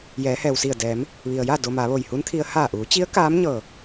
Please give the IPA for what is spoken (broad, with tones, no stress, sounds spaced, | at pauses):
j ɛː˩˧ h ɛː˩ w s i˧˩ ə̯ d ɛː˩˧ m | ʋ i˩ ə̯ j a˥˨ d o˧ m a˩˧ ʋ o˧˩ j h u˧˥ n t̪ʰ i˧ ə̯ h aː˧˩ ʔ uː˩˧ t͡ɕ i˧˥ ə̯ k aː˧˥ m ɲ ɤː˧˩